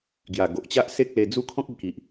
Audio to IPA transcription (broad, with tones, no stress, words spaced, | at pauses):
ɡja˨˩ ɡo˨ʔt͡ɕa˦ʔ se˦k̚le˧d͡zu˥˧ kʰɔ̃˦k̚e˧ki˨ʔ